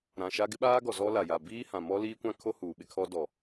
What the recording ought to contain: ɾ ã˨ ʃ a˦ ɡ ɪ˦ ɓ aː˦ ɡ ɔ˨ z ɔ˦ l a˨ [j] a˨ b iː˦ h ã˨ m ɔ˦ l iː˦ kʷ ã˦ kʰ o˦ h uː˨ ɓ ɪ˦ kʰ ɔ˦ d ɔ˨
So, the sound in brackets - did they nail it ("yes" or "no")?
yes